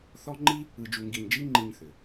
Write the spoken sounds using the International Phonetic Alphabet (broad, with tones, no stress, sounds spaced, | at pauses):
θ ɔ˥ ŋ͡ǃ i˥ | ɯ˧ d͡ʒ u˧ ŋ ɡ i˧ ɲ d͡ʒ i˥ ŋ͡ǃ i˧ ɲ θ ʏ˩